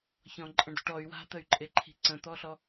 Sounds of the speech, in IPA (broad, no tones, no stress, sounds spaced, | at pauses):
ç ɔ̃ ǃʼ ə̃ ɳ d ɔ̤ ʈ ɔ y̯ w a̤ t̪ ə y̯ ǃʼ e ǃʰ i̤ ǀ ə̃ t̪ ɔ ɬ ɔ